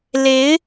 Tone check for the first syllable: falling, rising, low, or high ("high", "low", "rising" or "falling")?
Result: rising